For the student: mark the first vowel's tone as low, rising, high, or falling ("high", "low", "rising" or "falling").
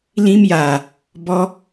high